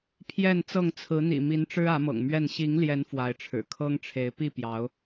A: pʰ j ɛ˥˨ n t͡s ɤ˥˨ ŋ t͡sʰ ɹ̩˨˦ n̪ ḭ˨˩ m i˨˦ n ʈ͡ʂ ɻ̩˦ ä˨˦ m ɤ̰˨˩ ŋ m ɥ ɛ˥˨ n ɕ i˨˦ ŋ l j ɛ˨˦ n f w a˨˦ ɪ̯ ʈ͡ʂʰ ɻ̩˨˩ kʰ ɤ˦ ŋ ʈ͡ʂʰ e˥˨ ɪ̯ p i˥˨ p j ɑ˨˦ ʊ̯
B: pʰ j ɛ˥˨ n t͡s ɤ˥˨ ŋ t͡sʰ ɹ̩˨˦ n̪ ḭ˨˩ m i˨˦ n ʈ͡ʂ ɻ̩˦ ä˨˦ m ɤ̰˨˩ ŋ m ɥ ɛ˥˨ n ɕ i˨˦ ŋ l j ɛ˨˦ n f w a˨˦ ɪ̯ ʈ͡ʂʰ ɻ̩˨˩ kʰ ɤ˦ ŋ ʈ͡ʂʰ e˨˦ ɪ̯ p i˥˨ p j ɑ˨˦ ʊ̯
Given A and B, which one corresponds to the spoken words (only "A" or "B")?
B